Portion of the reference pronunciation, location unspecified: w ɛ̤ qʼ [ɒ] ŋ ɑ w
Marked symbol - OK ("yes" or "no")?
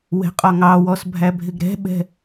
yes